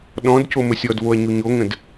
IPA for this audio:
ɗɔ̃d coməsʲɔdvoɐ̯ ɲuɲoŋə̃d

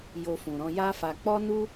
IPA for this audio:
jo˧fũ˨ɾɔ̃˧ ja˦fa˧ k͡pɔ˦nu˦

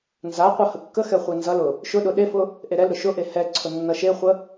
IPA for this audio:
nzaqʷʌ həkːəxɛ χʷɛnzʌlʊ | ʃʊɗʊ ɗefʊ | ʔeɾɛlɾʊ ʃʊʔe hɛǀʰʊ nːʌʃeχʷə

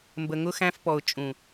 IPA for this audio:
mbə˨ŋʊ˦xæ̃˦fpɔ˨ʊ̯ t͡ʃʼũ˨

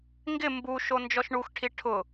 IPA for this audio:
ŋɡɪ mbuʃo nd͡ʒɔʃɳuxʈʰi ʈʰʊ

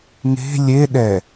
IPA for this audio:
ŋe̤ lʲe ɗɛ

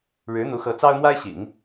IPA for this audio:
ɻɻ̩˧˥n̪u˧˥xɤ˧˥ t͡sɑ˥ʊ̯mwa˥ɪ̯ɕḭ˨˩˦ŋ

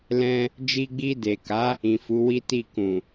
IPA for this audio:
lɛ̃˧ | d͡ʒi˧ɡ͡bi˧de˨ka˨˦ | ĩ˨fu˨˦wi˦ti˦˨ kũ˨

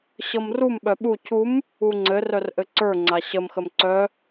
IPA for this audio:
ɕɤmrum ɓœɓu cʰum | uŋ͡ǀɘ rœrʔɘǀə˞ ŋ͡ǀaɕəm xəmǀœ

